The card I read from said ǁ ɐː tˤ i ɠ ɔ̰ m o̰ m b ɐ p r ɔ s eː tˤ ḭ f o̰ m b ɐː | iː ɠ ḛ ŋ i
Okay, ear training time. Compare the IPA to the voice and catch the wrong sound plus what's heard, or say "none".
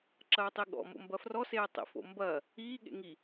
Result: p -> f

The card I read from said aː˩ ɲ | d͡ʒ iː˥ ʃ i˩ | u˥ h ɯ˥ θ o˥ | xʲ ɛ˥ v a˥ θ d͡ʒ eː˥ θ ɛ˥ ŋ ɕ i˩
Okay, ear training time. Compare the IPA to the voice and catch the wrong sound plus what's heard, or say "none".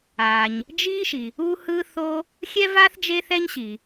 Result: ŋ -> ɲ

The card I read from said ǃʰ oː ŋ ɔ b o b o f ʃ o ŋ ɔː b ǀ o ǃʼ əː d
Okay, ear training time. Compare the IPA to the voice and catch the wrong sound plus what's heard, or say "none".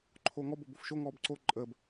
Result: d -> b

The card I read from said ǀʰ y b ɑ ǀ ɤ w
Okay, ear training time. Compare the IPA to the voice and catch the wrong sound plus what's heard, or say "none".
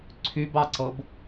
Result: w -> b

